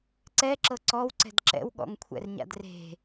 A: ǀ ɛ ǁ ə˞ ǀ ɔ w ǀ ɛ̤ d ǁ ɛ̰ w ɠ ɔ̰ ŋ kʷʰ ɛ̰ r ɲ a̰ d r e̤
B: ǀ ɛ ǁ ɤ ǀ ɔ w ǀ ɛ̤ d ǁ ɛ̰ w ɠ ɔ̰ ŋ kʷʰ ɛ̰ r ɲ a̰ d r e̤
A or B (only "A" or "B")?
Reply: B